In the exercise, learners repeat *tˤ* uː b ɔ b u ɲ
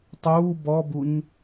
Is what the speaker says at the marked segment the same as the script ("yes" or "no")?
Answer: yes